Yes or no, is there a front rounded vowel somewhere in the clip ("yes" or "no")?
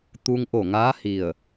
no